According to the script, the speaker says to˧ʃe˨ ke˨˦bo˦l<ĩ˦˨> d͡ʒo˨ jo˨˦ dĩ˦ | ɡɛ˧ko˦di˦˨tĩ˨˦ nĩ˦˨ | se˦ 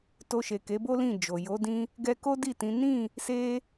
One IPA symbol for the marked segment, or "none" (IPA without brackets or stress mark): ĩ˦˨